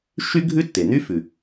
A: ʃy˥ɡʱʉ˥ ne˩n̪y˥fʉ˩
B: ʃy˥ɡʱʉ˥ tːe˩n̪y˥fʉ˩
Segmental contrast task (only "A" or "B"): B